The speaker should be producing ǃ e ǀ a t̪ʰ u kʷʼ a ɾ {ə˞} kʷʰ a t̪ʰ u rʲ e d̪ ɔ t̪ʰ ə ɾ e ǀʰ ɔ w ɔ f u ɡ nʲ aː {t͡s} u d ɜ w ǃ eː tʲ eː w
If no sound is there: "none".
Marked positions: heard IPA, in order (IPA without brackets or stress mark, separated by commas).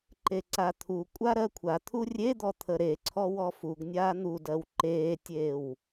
ɜ, n̪